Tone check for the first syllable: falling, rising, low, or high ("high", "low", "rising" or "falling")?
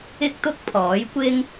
high